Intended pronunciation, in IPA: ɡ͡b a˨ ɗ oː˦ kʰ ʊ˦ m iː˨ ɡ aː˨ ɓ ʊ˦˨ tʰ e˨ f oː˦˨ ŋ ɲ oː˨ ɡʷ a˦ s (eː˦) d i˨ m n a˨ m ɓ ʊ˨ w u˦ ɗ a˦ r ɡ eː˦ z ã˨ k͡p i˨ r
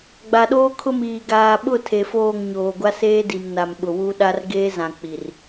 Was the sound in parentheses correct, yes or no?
yes